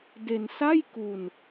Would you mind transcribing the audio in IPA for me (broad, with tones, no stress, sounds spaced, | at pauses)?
d e˧ n s a˥˩ j k u˧ n